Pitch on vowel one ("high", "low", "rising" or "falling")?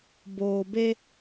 low